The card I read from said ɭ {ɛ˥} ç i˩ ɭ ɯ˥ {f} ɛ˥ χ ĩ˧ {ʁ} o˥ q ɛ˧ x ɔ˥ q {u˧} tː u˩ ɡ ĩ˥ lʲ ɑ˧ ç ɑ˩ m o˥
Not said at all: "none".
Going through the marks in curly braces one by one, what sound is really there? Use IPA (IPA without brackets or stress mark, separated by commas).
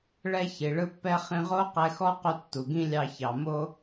ɛ˥, pː, ʁ, u˧